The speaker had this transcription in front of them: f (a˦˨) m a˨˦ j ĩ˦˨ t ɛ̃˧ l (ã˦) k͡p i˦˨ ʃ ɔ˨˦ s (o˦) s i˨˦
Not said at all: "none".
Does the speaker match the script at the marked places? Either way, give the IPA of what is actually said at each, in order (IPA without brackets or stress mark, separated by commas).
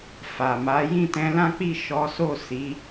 a˨, ã˦, o˦˨